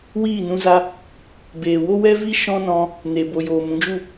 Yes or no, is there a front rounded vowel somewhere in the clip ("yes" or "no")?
no